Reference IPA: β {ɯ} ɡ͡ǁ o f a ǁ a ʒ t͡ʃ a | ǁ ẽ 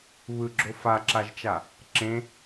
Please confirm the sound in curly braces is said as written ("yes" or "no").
yes